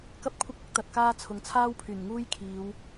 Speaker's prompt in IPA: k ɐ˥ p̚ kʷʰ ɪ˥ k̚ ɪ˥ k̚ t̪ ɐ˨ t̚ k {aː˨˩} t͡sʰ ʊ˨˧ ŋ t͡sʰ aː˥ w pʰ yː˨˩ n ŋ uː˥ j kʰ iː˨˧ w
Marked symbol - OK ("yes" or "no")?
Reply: no